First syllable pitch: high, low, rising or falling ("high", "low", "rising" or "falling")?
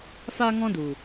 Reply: high